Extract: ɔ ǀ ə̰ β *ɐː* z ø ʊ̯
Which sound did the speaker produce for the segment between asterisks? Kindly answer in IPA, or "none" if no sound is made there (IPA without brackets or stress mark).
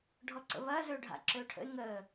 ɐː